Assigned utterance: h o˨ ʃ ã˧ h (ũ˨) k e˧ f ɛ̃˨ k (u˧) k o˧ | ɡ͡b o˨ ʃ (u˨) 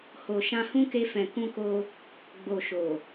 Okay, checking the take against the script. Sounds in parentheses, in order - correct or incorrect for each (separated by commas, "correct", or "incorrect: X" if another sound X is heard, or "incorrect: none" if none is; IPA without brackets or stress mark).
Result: incorrect: ũ˦, incorrect: ũ˧, incorrect: o˨